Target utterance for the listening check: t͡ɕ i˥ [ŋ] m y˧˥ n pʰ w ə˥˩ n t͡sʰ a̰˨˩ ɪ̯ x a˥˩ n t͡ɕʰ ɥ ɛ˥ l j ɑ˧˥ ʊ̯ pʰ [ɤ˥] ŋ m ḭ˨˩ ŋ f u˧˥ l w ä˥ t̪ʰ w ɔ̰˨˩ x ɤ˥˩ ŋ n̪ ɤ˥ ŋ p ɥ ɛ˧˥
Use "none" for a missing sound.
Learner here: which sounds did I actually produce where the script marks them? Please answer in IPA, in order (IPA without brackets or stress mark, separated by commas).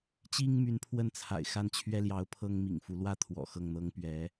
ŋ, ɤ˥